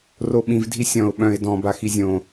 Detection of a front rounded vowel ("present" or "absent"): present